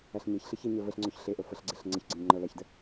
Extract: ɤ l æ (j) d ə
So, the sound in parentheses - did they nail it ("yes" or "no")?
no